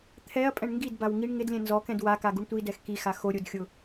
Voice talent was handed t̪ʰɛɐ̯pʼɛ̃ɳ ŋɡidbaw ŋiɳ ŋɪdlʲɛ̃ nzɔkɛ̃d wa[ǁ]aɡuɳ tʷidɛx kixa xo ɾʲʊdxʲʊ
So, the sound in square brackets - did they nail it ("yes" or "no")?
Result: no